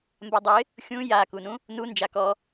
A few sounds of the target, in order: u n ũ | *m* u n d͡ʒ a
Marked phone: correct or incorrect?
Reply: incorrect